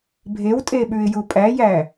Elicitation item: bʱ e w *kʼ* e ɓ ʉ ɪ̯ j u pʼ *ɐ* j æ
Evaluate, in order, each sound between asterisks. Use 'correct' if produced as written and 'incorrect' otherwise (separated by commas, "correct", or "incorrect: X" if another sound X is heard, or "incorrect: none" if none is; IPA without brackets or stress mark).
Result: incorrect: tʼ, incorrect: æ